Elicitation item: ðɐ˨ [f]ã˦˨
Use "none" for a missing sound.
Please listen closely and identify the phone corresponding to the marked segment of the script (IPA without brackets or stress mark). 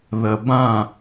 b